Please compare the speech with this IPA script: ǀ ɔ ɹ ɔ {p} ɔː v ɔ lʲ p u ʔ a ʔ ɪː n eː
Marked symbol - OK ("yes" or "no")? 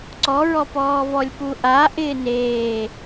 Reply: yes